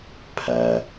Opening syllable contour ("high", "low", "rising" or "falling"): low